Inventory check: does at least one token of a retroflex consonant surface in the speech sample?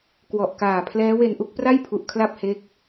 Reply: no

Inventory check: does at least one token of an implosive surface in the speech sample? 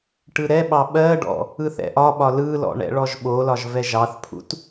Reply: yes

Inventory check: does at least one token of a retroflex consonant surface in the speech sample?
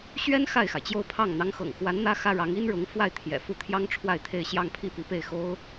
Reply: yes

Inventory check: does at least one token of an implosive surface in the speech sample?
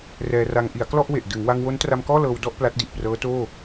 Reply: no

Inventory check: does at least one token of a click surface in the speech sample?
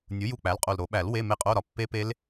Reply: no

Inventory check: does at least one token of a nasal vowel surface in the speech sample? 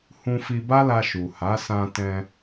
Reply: yes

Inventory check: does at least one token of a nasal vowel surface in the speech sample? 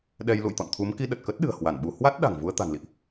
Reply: no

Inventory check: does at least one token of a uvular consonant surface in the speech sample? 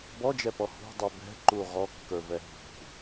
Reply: yes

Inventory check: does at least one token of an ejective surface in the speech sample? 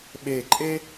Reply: yes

